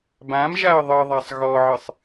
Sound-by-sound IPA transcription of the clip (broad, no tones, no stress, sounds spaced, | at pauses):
b ã m ʒ a ə̯ ðˤ ɨ ðˤ a sˤ ɣ ɔ ʕ ɨ sˤ